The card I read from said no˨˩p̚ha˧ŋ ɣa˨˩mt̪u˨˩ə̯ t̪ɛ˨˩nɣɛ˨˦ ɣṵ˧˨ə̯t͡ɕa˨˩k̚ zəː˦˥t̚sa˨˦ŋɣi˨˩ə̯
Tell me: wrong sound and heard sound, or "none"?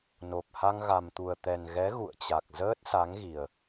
none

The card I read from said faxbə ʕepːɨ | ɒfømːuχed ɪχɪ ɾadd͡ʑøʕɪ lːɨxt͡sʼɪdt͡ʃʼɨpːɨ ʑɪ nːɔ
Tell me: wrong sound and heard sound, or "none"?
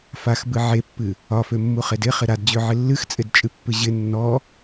ə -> ɨ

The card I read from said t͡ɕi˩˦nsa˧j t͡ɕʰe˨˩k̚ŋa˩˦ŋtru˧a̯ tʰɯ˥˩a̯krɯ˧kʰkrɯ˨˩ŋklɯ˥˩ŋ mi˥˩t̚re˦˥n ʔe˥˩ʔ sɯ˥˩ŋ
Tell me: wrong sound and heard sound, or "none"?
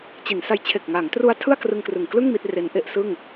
kʰ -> ŋ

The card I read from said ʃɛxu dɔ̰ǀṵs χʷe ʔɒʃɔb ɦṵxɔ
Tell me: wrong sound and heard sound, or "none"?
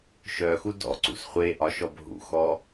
ɛ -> œ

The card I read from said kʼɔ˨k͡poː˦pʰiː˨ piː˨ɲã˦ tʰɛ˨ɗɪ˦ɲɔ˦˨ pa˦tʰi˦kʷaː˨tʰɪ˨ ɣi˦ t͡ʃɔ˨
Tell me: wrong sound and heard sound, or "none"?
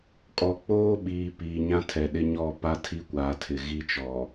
pʰ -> ɓ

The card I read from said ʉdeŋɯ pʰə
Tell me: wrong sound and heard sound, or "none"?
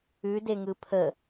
none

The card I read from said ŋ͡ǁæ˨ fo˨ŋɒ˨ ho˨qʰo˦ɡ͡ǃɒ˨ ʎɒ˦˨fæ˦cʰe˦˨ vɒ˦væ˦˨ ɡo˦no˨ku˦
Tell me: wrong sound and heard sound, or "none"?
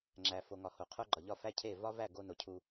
k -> cʰ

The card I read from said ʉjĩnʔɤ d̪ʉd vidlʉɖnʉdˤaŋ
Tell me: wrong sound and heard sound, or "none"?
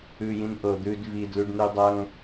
none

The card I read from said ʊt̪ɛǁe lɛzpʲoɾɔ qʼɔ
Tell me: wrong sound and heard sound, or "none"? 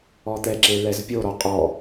ʊ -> ɔ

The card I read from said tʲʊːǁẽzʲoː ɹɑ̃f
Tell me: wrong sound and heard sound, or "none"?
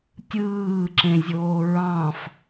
ʊː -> ɯː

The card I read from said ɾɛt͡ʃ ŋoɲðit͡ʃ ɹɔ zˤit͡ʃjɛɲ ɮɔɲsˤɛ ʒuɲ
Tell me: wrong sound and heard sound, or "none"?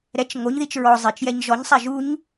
ɮ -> ʒ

